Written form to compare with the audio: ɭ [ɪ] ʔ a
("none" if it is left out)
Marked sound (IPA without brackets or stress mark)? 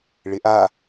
ɪ